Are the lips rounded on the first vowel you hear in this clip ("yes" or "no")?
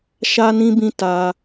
no